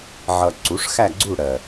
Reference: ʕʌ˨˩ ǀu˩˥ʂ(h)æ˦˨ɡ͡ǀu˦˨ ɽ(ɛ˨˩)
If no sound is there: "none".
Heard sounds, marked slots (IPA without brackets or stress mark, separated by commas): x, ɜ˨˩